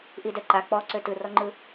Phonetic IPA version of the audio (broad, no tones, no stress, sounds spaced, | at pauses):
ʔ i d ɛ ǃ a k͡p ɔ ǀ ø t ɯ r ɔ ŋ͡ǃ ɯ